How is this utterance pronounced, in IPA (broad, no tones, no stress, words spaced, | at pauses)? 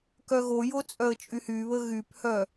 kœɣojo t͡sʼœə̯t͡ʃʼyhyβə ɣyphœ